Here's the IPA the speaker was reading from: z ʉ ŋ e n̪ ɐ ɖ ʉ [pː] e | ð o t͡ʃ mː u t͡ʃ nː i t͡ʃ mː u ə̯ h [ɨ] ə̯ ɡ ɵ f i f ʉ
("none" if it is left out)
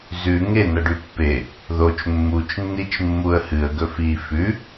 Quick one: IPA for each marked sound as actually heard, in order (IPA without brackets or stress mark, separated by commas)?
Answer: pː, ɨ